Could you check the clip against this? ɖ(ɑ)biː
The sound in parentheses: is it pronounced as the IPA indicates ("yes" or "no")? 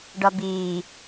no